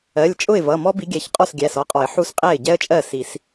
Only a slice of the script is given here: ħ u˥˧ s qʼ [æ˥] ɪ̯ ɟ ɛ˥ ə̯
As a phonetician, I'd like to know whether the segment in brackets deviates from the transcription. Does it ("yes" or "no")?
yes